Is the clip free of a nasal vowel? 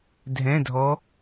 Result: no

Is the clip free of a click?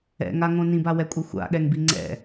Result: no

